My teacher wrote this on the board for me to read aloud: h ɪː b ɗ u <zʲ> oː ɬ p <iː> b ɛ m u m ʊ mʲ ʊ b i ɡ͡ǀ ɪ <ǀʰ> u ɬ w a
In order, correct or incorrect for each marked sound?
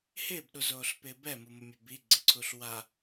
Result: incorrect: z, incorrect: ɪː, correct

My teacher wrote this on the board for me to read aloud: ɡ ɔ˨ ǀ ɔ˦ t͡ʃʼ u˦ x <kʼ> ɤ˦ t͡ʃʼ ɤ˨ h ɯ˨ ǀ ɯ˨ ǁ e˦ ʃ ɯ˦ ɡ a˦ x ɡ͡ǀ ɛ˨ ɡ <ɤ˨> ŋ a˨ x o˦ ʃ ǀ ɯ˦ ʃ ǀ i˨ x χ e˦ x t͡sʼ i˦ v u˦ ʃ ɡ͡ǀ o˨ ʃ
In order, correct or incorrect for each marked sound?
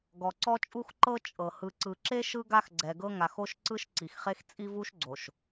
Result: incorrect: ǃ, incorrect: ɤ˦

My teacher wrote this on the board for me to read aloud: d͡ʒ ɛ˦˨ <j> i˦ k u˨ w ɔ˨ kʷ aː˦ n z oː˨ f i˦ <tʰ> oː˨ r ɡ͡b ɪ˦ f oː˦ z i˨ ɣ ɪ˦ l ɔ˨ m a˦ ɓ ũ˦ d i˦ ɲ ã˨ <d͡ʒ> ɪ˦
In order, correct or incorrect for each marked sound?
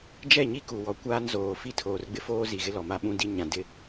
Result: incorrect: ɲ, correct, incorrect: d

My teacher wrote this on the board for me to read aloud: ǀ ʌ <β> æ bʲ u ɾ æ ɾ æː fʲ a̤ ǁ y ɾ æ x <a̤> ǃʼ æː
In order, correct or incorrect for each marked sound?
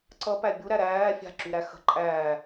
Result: incorrect: p, incorrect: ə̤

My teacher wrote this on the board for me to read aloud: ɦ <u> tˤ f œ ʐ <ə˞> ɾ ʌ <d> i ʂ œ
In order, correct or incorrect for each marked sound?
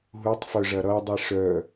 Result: correct, incorrect: ɐ, incorrect: dˤ

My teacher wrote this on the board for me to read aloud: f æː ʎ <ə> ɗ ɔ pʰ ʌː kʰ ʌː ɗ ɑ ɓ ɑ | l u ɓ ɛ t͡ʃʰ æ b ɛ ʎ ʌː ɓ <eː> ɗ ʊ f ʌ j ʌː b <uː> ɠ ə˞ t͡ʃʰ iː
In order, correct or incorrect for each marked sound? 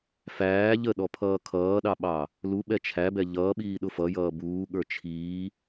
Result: correct, incorrect: iː, correct

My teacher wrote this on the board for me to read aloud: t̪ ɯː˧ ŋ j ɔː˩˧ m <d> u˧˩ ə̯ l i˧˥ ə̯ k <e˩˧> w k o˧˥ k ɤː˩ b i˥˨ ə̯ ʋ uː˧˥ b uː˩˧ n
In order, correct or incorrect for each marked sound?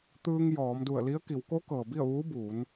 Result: correct, incorrect: i˩˧

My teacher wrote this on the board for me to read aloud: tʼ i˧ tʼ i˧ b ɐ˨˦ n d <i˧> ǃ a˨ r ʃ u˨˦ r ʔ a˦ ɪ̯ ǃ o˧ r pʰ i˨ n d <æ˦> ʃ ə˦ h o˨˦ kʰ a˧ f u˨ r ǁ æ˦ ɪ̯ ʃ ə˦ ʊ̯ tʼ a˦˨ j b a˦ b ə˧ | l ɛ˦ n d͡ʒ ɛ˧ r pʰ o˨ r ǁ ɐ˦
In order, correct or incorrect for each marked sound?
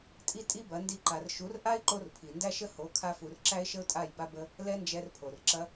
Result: correct, correct

